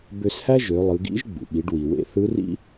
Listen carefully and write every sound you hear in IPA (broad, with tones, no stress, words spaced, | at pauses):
bø˧shæ˥ ʒø˩˧lˠɯ˩˧ɡḭ˧˥ʒ ɡ͡bṵ˩ɓi˩˧ɖwi˩wḛ˧˥ θɯ˧˥rḭ˥